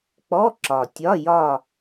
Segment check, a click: present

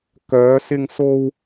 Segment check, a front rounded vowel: present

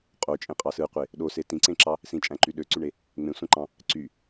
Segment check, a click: present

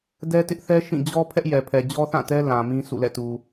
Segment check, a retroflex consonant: absent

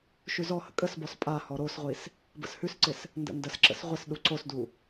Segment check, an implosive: present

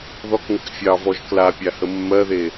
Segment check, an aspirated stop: absent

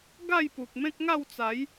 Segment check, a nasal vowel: present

